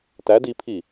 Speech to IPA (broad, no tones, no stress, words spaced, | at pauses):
tæd ipʰi